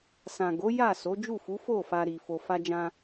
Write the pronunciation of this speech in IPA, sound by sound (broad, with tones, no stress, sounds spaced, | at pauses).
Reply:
s ã˨ ɡ o˨˦ j a˦˨ s o˨˦ d͡ʒ u˦˨ f u˨˦ f o˦˨ f a˧ ɾ i˨ f o˨ f a˧ d͡ʒ ã˧